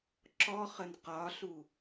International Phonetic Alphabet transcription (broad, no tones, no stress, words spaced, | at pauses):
ǁɔχən qɒɬu